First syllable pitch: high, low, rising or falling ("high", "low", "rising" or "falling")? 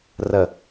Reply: low